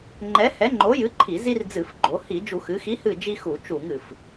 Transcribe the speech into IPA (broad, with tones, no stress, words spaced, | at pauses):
ŋ͡ǃɛ˨˥ hɛ˨˥ŋ͡ǃo˨˥jɨ˨˥ǃʰi˧˩˧ zi˦rd͡zɨ˧˩˧fɡ͡ǃo˩˧ hi˧˩˧d͡ʒu˧˩˧xɨ˩˧xi˨˥ hɨ˥˨ d͡ʒi˦xu˧˩˧ t͡ʃu˧˩˧ŋɨ˩f